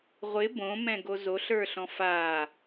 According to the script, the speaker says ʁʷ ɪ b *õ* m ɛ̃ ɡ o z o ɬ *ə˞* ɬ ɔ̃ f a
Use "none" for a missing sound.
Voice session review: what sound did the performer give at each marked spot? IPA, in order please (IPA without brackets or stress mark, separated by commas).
õ, ə˞